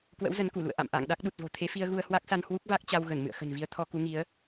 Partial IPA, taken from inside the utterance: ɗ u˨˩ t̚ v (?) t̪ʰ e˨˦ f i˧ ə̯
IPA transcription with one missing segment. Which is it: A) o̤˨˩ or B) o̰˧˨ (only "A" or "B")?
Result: A